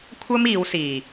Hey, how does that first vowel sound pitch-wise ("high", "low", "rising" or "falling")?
high